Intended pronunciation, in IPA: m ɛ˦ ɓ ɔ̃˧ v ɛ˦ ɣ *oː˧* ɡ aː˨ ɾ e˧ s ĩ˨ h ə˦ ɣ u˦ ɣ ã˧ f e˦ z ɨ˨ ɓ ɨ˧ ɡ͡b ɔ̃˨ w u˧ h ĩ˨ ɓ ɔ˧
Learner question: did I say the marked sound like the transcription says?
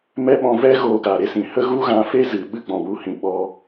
yes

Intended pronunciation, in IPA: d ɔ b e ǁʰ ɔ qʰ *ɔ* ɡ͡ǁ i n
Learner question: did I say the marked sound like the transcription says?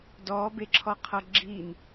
no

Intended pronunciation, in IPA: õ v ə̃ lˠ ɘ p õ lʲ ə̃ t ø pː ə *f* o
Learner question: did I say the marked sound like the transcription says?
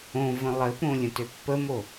no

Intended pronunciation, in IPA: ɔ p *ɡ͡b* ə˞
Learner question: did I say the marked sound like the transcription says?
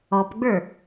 yes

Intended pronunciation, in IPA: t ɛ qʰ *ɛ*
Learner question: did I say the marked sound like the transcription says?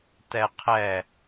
yes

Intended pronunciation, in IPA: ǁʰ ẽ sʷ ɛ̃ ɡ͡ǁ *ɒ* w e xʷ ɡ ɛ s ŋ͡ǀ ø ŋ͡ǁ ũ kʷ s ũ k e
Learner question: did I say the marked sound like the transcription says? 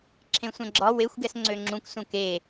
yes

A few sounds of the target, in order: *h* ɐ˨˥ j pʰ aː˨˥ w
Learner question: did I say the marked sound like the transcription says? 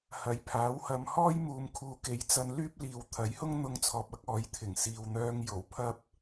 yes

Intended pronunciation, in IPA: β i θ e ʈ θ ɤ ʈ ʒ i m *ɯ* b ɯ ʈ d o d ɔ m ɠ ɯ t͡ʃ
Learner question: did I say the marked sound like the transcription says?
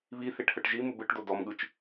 no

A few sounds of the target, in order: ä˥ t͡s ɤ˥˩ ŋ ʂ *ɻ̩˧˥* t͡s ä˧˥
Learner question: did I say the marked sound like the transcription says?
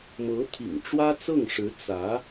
yes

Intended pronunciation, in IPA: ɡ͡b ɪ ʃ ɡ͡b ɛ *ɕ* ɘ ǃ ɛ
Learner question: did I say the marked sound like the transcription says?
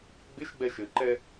no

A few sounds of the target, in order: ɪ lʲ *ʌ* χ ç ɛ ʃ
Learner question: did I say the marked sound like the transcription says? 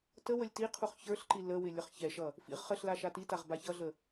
yes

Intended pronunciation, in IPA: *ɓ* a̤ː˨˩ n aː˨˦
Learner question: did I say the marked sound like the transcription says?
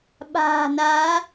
yes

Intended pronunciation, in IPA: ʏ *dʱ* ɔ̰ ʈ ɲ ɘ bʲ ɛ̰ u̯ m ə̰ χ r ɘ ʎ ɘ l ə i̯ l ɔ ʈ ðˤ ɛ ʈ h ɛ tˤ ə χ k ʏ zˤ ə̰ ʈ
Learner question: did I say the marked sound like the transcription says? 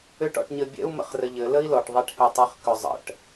no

